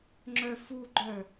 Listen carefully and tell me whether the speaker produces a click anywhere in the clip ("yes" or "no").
yes